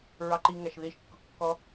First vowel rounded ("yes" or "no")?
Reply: no